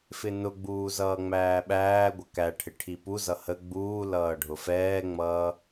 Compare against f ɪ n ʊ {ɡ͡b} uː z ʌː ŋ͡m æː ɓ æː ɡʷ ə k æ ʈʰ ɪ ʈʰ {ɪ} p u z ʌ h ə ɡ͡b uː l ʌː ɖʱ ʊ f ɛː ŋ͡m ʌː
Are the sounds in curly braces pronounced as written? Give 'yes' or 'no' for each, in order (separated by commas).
yes, no